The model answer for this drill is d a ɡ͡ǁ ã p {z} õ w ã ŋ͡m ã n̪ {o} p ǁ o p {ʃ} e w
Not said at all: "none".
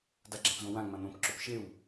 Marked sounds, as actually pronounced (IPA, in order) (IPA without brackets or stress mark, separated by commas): z, õ, ʃ